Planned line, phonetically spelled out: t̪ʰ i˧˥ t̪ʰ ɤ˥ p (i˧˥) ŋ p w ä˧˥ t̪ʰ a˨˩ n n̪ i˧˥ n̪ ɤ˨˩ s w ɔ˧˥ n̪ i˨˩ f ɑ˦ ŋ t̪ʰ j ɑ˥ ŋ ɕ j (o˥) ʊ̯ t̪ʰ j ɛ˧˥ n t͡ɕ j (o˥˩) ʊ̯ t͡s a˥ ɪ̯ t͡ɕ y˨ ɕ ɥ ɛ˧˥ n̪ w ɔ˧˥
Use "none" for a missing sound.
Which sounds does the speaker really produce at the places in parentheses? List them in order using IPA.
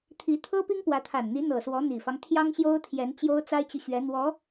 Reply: i˥, o˥, o˥

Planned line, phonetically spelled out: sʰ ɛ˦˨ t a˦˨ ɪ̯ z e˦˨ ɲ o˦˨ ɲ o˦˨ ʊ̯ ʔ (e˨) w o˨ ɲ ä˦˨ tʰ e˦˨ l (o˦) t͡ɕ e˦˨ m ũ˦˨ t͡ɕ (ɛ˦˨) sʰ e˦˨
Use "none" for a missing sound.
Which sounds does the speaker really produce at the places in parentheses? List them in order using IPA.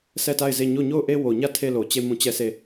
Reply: e˦, o˨, ɛ˦˨

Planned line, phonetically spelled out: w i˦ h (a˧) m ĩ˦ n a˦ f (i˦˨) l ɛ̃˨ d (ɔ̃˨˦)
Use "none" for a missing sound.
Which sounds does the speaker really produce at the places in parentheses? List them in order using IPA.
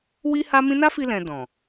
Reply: a˦, i˧, ɔ̃˨

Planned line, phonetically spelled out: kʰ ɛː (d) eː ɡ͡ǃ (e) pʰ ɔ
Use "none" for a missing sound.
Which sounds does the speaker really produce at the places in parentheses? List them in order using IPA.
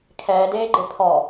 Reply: d, e

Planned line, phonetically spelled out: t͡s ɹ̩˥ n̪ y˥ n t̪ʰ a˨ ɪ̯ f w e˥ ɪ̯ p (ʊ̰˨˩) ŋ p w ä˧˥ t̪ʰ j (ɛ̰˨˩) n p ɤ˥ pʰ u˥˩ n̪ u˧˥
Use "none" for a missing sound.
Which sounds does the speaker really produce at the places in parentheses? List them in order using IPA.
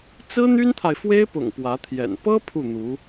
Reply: ʊ̰˨˩, ɛ̰˨˩

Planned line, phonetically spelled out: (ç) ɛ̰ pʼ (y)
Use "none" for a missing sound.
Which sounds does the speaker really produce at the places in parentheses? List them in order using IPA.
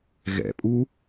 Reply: ɣ, u

